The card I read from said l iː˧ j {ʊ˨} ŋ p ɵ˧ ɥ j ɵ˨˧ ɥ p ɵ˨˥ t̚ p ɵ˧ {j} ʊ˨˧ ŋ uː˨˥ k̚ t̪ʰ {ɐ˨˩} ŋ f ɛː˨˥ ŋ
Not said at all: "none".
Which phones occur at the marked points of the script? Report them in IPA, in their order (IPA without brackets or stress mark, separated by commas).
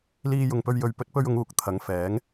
ʊ˨, ɥ, ɐ˨˥